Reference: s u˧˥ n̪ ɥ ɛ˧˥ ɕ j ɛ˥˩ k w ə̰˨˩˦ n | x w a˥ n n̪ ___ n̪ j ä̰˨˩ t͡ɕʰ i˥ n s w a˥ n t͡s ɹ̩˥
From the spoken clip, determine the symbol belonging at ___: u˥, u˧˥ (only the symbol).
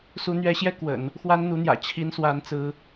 u˧˥